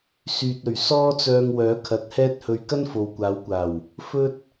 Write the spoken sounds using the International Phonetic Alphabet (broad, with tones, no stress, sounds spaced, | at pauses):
s yː˨ t̚ ɵ˨˩ ɥ s ɔː˥ t͡s œː˧ ŋ w œː˨˥ kʰ ɐ˨˥ t̚ h ɛː˥ t̚ h ɵ˧ ɥ k ɐ˥ n f o˨ w kʷ aː˨˧ w kʷ aː˨˩ w | f ɵ˥ t̚